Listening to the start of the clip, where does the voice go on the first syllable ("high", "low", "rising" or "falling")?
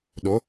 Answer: rising